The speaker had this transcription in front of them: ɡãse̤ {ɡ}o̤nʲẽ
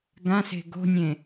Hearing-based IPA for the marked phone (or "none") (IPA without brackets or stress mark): ɡ